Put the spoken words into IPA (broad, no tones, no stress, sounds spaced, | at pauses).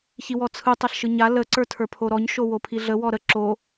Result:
ç i w ɔ t͡sʰ ɯ tˤ a ɬ ʃ ɯ ɲ a l ə ǀ ə˞ tʰ ə˞ pʰ o ɾ ɔ ɲ ʃ o w o pʰ i ɮ ə w ɔ ɾ ə ǁ o